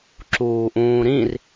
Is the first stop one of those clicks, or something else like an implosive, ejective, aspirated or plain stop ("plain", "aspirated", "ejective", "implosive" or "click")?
click